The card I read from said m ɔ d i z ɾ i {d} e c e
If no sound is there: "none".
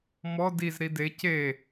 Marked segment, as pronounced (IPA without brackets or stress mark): d